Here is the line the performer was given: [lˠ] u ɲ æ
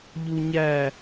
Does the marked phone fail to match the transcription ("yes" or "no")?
yes